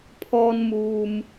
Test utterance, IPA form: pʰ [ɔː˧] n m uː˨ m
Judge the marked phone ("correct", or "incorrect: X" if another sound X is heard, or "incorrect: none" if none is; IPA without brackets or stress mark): correct